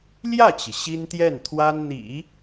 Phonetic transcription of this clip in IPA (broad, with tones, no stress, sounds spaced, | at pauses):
l j ä˥˩ t͡ɕ i˩ ɕ i˥ n t̪ j ɛ˥˩ n t̪ʰ w a˥ n n̪ ḭ˨˩˦